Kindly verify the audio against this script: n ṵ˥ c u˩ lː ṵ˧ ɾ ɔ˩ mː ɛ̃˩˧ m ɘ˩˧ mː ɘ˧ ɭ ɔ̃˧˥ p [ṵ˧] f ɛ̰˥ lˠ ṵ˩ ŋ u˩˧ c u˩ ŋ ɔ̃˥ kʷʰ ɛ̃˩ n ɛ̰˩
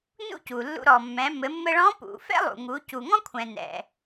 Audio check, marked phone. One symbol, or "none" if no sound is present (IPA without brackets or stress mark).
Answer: ṵ˩